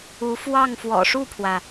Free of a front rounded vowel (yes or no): yes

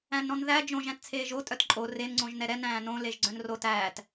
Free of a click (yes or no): no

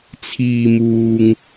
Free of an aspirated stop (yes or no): no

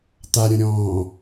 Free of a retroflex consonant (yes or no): yes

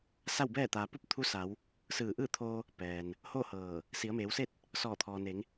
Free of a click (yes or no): yes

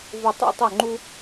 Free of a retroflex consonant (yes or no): yes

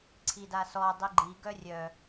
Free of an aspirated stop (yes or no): no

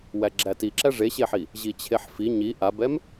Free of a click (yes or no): no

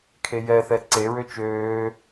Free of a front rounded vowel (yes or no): no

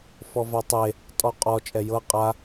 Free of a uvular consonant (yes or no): no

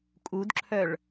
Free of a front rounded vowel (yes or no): no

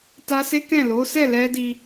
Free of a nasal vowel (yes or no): no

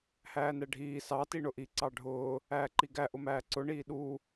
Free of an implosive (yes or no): no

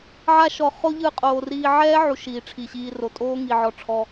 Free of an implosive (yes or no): yes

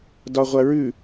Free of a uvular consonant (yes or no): no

